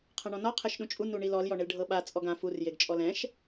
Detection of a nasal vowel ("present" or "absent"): present